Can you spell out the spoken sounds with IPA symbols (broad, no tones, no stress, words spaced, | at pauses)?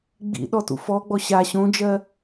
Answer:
ɡ͡bḭɗɔ tṵfɔɡ͡bɔ ɕa ɕõd͡ʒɜ